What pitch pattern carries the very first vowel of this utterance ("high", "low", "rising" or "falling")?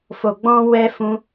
low